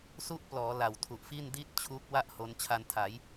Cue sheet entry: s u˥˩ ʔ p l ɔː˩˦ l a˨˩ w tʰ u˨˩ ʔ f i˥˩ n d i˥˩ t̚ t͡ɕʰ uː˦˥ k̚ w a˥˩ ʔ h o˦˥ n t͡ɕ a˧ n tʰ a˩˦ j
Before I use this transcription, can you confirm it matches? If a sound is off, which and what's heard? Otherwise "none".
t͡ɕ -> t͡ɕʰ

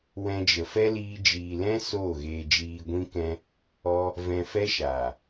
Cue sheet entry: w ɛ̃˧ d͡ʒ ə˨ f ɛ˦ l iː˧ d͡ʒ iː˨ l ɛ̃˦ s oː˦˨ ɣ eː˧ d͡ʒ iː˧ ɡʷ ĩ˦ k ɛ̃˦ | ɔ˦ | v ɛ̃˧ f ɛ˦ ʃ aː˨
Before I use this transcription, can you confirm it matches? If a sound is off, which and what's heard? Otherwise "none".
none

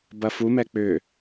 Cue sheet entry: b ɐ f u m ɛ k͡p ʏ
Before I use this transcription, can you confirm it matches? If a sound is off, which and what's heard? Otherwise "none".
none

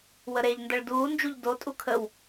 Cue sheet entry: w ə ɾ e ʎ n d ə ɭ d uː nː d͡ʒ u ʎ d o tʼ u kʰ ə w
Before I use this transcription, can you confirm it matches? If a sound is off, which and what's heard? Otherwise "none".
nː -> n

